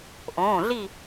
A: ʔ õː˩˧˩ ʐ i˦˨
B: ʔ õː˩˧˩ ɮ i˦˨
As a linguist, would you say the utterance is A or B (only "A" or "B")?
B